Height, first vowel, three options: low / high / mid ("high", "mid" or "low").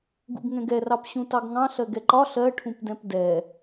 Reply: high